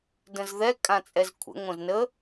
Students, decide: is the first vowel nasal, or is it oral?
nasal